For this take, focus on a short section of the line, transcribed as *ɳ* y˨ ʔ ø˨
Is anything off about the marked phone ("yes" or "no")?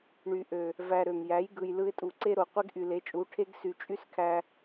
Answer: no